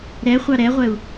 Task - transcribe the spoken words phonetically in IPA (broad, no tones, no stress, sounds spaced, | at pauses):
ɾ ɛ χʷ ɑ ɾ ɛ ʁʷ ɛ u̯